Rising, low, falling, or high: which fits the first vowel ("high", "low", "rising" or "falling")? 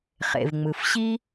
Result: low